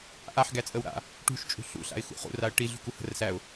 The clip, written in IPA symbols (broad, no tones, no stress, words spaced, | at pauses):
ʔaħ ɡæt͡sʼəwɾa̰ | ʈṳʃ t͡ʃʼṳɬṵ ɬa̰ɪ̯xṵχṵ raə̯ʈi ɮṳkuhə̤rsæʊ̯